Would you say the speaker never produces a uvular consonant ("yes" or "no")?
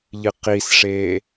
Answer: no